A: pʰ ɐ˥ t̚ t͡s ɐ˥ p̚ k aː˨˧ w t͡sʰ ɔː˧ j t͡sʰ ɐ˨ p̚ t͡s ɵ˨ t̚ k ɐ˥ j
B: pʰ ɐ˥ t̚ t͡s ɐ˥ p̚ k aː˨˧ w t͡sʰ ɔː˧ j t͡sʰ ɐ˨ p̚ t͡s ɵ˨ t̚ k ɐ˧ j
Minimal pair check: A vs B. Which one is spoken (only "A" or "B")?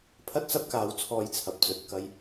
B